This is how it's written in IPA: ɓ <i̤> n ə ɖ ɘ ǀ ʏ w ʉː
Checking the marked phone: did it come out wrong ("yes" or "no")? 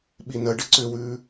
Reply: yes